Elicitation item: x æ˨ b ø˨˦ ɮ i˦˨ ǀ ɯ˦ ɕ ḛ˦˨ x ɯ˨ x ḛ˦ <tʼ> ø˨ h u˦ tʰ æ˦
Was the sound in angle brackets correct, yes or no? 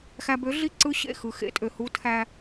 yes